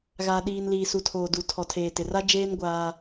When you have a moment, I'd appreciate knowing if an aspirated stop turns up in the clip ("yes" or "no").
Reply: yes